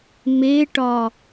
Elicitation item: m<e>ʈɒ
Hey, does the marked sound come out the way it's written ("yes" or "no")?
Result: yes